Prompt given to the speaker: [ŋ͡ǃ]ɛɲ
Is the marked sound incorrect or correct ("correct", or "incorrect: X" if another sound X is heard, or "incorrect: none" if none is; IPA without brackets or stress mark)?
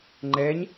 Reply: correct